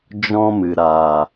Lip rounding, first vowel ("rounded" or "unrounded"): rounded